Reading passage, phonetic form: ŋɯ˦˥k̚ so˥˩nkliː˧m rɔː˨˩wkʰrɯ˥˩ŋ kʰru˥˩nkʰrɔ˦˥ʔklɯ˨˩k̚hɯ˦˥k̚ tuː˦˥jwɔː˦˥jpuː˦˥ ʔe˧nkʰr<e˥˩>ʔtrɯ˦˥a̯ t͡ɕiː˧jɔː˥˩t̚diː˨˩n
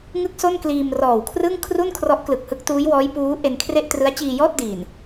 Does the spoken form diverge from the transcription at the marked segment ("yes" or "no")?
no